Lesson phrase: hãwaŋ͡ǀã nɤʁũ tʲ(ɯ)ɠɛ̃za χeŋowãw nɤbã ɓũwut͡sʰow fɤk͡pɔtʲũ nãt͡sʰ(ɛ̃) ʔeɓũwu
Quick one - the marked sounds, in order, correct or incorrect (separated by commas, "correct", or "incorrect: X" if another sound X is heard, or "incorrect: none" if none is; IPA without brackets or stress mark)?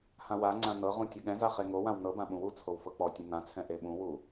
incorrect: ɤ, correct